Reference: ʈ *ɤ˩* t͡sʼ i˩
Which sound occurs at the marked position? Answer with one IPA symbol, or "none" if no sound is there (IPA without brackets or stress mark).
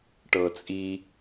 ɤ˩